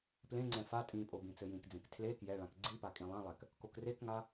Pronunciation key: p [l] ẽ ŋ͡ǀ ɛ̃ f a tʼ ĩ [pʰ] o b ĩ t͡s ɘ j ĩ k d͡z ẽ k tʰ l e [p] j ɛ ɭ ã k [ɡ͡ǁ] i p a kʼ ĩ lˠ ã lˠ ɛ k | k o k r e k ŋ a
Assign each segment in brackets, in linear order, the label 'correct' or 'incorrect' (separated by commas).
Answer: correct, incorrect, incorrect, incorrect